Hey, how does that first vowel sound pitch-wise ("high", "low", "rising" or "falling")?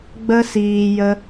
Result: high